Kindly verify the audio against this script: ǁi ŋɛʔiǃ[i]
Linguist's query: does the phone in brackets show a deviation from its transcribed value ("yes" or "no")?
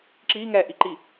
no